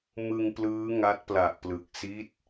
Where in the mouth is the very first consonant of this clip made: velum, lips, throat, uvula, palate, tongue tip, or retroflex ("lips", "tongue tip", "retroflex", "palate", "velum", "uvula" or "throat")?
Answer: lips